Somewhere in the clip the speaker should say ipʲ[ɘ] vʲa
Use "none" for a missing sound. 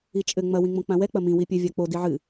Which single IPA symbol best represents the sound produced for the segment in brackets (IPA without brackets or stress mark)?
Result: ɘ